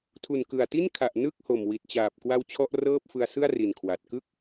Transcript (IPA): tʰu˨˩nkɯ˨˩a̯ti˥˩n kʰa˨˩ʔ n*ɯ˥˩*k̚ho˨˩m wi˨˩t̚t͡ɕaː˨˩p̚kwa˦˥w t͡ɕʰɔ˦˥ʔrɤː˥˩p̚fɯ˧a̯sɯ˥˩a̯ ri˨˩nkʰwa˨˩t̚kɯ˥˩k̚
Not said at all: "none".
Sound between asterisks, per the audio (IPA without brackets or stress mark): ɯ˥˩